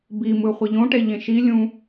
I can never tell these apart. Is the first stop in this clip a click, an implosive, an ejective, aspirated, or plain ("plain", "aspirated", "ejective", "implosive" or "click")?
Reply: plain